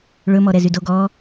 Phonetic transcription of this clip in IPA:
ɭ ɵ m ɔ ɾ ɛ z y d o ɡ ɔ

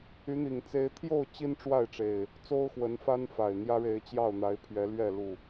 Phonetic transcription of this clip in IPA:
y˨˦ n̪ i˨˩ ŋ t͡s e˨˦ ɪ̯ t̪ʰ j o˥˨ ʊ̯ t͡ɕ i˦ n ʈ͡ʂ w a˥˨ ɪ̯ ʈ͡ʂ e˨˩ ɪ̯ | t͡s o˦ ʊ̯ x w ə˨˦ n f a˦ n f a˨˩ ɪ̯ n̪ j ä˦ ɻ e˨˦ ɪ̯ t͡ɕ j ɑ˥˨ ʊ̯ n̪ a˨˦ ɪ̯ pʰ ɥ ɛ˨˦ l ɥ ɛ˥˨ l u˥˨

